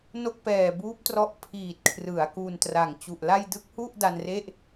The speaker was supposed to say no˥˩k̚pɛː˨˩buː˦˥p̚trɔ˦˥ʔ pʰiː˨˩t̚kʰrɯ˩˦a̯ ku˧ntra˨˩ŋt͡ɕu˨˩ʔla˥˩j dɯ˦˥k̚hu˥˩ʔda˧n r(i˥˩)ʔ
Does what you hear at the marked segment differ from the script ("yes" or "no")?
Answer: yes